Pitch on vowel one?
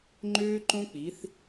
high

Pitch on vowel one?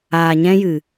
low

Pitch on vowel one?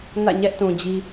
falling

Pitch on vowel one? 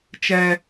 low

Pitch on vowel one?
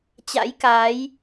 rising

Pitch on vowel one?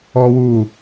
high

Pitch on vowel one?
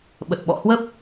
low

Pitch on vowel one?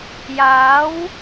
rising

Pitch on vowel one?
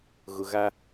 low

